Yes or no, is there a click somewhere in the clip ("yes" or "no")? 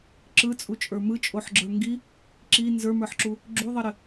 yes